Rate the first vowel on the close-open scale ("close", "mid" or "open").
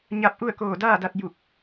open